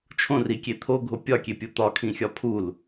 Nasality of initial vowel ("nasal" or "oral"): nasal